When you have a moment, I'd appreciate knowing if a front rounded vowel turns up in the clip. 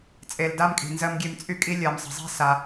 yes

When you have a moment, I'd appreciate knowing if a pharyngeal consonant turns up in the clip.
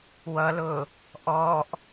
no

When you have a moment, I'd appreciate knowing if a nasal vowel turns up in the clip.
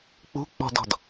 no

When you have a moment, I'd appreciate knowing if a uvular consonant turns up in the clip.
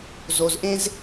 no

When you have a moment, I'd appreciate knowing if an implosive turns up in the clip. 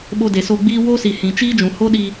yes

